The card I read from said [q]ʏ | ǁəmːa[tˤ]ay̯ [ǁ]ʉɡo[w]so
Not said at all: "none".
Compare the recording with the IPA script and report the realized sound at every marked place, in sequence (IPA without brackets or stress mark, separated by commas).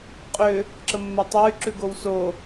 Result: qʼ, tˤ, ǁ, w